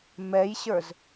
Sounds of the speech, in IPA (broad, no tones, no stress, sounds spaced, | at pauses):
m ɛ j ɕ ə˞ z